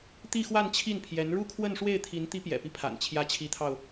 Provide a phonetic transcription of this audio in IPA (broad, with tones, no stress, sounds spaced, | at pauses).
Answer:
t̪ i˥˧ x w a˥˧ n t͡ɕʰ i˥˩ n pʰ j ɛ˧˥ n ɻ u˥˧ kʰ w ə˥˧ n ʂ w e˥˩ ɪ̯ t̪ʰ i˧˥ n t̪ i˧˥ p j ɛ̰˨˩ p i˦ pʰ a̰˨˩ n t͡ɕʰ j ä˧˥ t͡ɕʰ i˧˥ t̪ʰ ɑ˧ ʊ̯